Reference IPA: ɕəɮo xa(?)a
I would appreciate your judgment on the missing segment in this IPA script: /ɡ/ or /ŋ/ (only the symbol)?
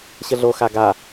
ɡ